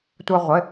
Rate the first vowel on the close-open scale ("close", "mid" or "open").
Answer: mid